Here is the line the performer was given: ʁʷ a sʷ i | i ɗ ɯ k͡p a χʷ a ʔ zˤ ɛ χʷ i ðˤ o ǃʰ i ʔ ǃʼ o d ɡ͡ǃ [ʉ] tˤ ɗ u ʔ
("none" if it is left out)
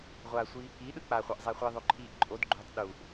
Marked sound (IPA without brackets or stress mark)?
u